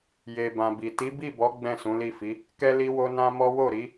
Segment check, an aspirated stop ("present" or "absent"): absent